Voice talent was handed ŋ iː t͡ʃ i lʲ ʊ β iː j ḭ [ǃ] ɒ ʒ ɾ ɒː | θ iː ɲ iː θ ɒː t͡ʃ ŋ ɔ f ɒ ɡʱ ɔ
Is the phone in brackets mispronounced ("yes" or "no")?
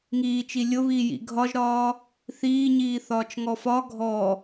yes